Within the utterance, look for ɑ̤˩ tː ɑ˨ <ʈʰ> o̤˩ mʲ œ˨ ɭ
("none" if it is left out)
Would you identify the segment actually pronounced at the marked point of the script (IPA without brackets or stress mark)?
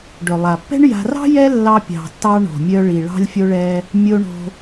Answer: ɳ